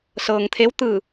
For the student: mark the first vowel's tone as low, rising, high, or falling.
low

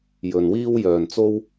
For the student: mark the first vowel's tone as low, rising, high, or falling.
low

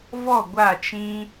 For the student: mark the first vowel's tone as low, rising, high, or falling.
falling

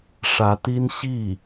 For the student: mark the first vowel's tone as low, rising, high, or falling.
rising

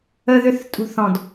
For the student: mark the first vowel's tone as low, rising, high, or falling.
high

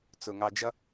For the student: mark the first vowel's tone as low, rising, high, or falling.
low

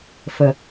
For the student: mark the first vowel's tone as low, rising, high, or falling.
low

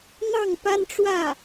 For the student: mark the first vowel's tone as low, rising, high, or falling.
falling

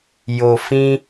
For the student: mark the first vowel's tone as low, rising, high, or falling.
low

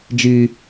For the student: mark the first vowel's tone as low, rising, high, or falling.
low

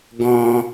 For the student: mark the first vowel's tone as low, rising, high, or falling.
low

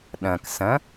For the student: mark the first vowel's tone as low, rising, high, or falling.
low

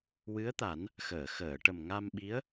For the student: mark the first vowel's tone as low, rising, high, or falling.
rising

